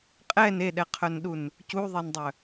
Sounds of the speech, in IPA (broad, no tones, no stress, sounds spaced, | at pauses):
qʼ ɛ n e ɗ ɛ qʰ œ n ɗ u n | c u ðˤ ɛ n dˤ œ